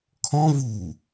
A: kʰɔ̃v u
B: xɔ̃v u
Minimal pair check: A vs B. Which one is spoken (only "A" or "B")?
A